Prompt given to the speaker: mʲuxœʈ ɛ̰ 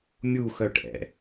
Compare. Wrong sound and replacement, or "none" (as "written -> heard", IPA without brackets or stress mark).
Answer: none